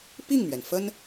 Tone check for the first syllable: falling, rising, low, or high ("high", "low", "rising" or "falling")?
falling